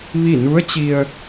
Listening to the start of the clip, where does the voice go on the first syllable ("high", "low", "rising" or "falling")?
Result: falling